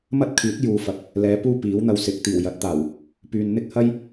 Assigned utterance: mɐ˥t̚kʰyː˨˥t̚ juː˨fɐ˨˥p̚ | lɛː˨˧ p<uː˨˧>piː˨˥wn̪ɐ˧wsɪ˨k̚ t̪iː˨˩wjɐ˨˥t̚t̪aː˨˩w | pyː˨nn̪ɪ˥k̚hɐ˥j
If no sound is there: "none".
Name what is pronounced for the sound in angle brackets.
uː˥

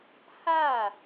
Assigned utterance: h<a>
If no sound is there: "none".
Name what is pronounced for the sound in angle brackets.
a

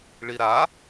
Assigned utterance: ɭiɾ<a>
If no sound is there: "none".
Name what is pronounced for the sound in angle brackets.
a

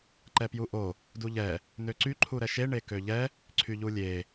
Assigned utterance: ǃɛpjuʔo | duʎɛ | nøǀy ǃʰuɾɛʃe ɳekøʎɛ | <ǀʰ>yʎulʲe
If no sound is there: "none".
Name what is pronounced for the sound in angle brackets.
ǀʰ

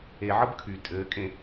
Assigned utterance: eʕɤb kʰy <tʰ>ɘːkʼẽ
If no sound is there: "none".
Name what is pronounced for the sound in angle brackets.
tʼ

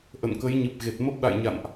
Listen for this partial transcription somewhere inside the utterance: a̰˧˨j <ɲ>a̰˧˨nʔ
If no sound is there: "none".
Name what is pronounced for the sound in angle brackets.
ɲ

